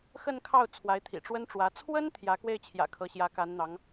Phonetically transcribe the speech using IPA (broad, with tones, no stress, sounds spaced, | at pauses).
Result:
x ə˥˧ n kʰ ɑ˥˩ ʊ̯ t͡sʰ w a˧˥ ɪ̯ t̪ʰ ḭ˨˩ ʈ͡ʂ w ə˥ n ʈ͡ʂ w ä˧˥ t͡sʰ w ə˥ n t̪ʰ j ä˧˥ k w e˥˩ ɪ̯ t͡ɕʰ j ä̰˨˩ kʰ ɤ˧˥ ɕ j ä˧˥ k a˧˥ n n̪ ɑ˧˥ ŋ